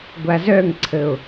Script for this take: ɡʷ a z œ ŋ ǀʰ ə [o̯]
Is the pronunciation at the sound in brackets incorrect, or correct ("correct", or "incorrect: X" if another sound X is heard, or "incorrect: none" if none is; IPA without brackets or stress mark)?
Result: correct